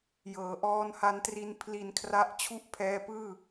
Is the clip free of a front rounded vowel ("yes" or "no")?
yes